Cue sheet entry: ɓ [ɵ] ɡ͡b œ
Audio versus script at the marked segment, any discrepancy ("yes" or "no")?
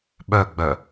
yes